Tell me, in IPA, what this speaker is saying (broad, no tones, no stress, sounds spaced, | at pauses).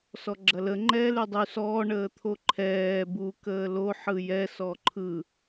s ɔ ɡ͡ǁ ɐ l ə ŋ͡ǃ ɛː l y dˤ y s ɔː ɳ əː t̪ʰ o ǃʰ ɛː b u k əː l o ħ ɯ j ɛ s ɔ ǃʰ ɯ